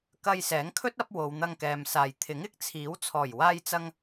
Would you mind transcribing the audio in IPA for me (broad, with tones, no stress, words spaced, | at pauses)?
kɐ˧jsɛː˨˥ŋkʰɵ˥t̚ɐ˨˥p̚ wo˨˧w n̪ɐ˧ŋkɛː˨msaː˨j t̪ʰɪ˨˥ŋɪ˥k̚ t͡sʰiː˨˥w t͡sʰɔː˨˩jwaː˧jt͡sɐ˧ŋ